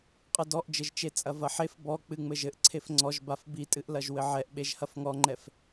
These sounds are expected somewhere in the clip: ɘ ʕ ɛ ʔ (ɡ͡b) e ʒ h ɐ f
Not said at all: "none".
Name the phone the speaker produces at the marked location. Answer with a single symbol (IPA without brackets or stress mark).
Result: ɓ